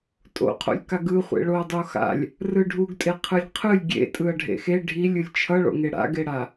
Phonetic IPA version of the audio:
tʼ o̰ qʰ o̰ lʲ k a ɡ ɯ χʷ ḛ ɭ o ɐ̯ dˤ o x a̰ lʲ | r ɯ ɖʱ u ɡ tʼ e qʰ ɯ lʲ qʰ ɯ lʲ ɡʲ ḛ tʼ ɯ ɐ̯ ɖʱ ḛ x e ɖʱ i lʲ ɯ lʲ t͡ʃʰ ʌ ɭ o̰ ŋ e ɽ a̰ ɡ e ɽ a

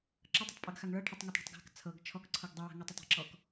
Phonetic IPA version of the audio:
ǁ ʌ tˤ ʏ tˤ pʼ ɤ ɡ x a ŋ ɭ ɤ ʈʰ ʌ tˤ ŋ ɔ tˤ ɽ ɔ̤ tˤ ɡ a̤ k t͡sʰ ɤ ɡ t͡ʃʰ ɔ k ǀʰ ɤ ɡ dˤ ɤ w a̤ ŋ a tˤ ʏ tˤ ɔ̤ ǁ ɔ k

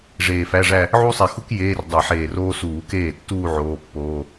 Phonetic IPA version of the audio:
ʐ eː˧˩ f æ˧˥˧ ʐ æ˥˧ | ʕ u˥ sˤ e˧˩ x u˥ k j eː˧˥˧ r dˤ e˧˩˧ ħ eː˧˩ r oː˥ s uː˧˩˧ k eː˥˩ tː uː˥˧ ʕ oː˧˥˧ pː oː˧˥˧

